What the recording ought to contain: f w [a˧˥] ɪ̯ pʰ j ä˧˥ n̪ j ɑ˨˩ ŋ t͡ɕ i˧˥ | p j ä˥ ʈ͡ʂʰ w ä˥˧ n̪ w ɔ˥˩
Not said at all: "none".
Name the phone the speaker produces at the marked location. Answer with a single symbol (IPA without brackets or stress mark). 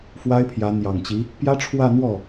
a˥